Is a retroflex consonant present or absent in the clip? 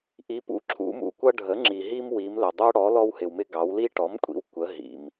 present